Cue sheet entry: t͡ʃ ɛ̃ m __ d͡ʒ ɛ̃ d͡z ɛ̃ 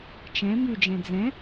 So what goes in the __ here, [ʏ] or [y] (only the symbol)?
y